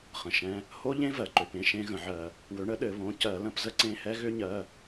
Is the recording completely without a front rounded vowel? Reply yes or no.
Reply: no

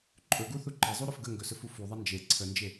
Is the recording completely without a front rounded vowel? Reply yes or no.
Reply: yes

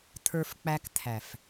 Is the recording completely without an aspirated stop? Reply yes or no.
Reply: no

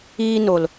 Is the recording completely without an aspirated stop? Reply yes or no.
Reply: yes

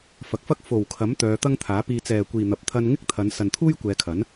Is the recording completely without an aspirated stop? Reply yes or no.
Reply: no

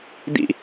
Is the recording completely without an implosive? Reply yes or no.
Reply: yes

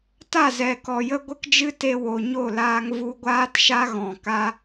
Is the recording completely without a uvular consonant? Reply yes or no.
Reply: yes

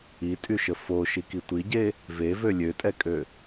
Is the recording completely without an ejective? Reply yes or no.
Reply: no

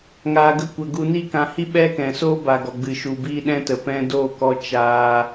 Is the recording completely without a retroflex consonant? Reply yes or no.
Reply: yes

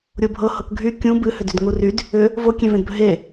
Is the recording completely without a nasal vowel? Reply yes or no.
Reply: no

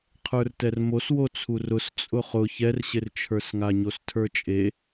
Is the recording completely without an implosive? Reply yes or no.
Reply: yes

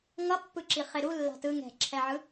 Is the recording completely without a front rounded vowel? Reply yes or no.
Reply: yes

